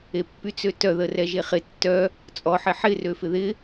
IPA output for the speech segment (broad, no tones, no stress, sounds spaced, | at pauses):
e pː y t͡s ø t œ ð ə r ɛ ʒ e χ ɪ tː œ | t͡sʼ ɔ ħ ɪ ħ ɪ r ø f ɪ ð ɪ